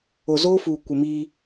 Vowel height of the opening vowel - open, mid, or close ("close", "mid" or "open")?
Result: mid